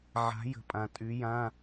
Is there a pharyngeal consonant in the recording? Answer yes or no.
yes